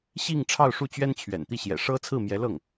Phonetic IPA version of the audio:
ɕ i˥˧ ŋ ʈ͡ʂʰ ɑ˥˧ ʊ̯ ʂ u˥˩ t͡ɕ ɥ ɛ˥ n t͡ɕʰ ɥ ɛ̰˨˩ n t̪ i˥˩ ɕ j ɛ̰˨˩ ʂ ɤ˥ t͡sʰ ɹ̩˥˩ m j ɛ˧˥ l ɤ˥˩ ŋ

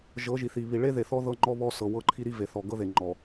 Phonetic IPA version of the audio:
ʒ ɤ˨˦ ʒ i˨ θ i˨ β i˨ ɭ e˦ ð e˨ θ ɔ˦ ð ɤ˦ ŋ͡ǃ ɔ˦ β ɔ˦ s ɤ˨ w ɤ˦˨ ǃʰ i˦ ɾ i˦ v e˨ θ ɔ˨ ɡ ɤ˦ ð e˨ ŋ͡ǃ ɔ˨

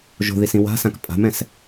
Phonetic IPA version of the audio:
ʒ o̤ ð i s ĩ w a̤ s ã k pʼ a̤ m ɛ̃ s

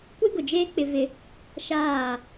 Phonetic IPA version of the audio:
kʷ e˦ ɡ ʊ˨ d͡ʒ eː˦ k͡p ɪ˦ v ɪ˦ | ʃ aː˦˨

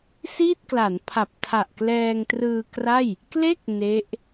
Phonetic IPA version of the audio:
s iː˥˩ t̚ k l a˩˦ n pʰ a˨˩ p̚ tʰ a˨˩ ʔ k l ɛː˧ ŋ t r ɯː˧ k r a˥˩ j | k l e˥˩ k̚ n e˦˥ ʔ

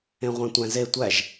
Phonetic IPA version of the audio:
ẽ ʁʷ æ̃ tʷ æ̃ z e tʷ æ ʒ

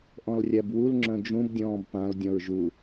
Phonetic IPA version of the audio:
ʔ ɔ̃ l rʲ æ b w u l ŋ͡ǁ œ̃ d͡ʒ ũ b dʲ ɔ̃ː b p ã l dʲ ɔ̃ ɹ ʒ u

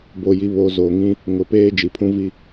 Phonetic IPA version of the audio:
b o˨ j i˨ β o˨ z o˨ ŋ ĩ˦ | ŋ ʊ˨ p eː˦ d͡ʒ i˨ pʰ ũ˦ v i˦

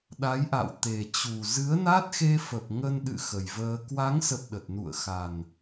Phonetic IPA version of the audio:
ɗ a˨˦ j ʔ a̰˧˨ w t̪ e˨˩ t͡ɕ u˨˩ z ɨ˨˦ ə̯ n a˦˥ t̚ x e˧ f ə˨˩ p̚ ŋ ə˧ n ɗ ɨ̰˧˨ x ə˨˩ j v əː˧ k w a˨˦ ŋ s ə˨˩ p̚ ɗ ə˨˩ t̚ n ṵ˧˨ ə̯ x a˨˩ n

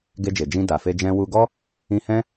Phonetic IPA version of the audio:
ɡ e˧ d͡ʒ e˨ d͡ʒ ĩ˧ d a˨ f e˧ d͡ʒ ɛ̃˧ w u˧ ɡ ɔ˦ | ĩ˧ h ɛ̃˦

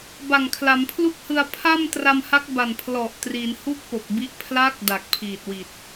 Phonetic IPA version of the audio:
b a˨˩ ŋ kʰ l a˩˦ m pʰ l u˥˩ k̚ h ɯ˧ a̯ pʰ a˥˩ m t r a˧ m h a˦˥ k̚ b a˨˩ n pʰ l ɔ˨˩ ʔ t r i˩˦ n h u˥˩ k̚ p o˨˩ k̚ b i˦˥ ʔ pʰ l a˦˥ k̚ d a˨˩ k̚ pʰ iː˨˩ t̚ w i˨˩ t̚

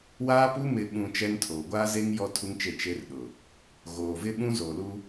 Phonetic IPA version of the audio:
w aː˦ p u˦ m ɪ˨ ɓ ũ˨ t͡ʃ ɛ˦ n tʰ oː˨ ɡʷ aː˦ z e˦ ŋ j ɔ˦ tʰ u˦ ŋ t͡ʃ e˦˨ t͡ʃ e˦ r ɗ ʊ˨ | ɣ oː˨ v ɪ˦ ɓ ũ˦ z o˨ l u˦

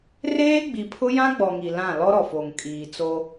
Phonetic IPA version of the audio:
r eː˦ ɡ͡b i˨ pʰ ʊ˦ j ã˦ ɡ͡b ɔ˨ ŋ i˨ l ã˦˨ l ɔ˦ ɾ ɔ˨ f o˨ ŋ kʼ iː˨ t͡s o˦

